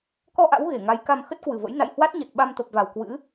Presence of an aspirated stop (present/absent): absent